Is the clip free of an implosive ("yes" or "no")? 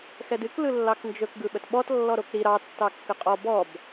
no